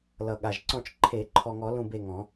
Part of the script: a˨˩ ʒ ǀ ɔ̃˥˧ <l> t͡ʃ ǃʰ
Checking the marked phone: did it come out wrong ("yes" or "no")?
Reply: yes